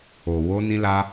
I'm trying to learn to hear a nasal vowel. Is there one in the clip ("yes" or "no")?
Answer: yes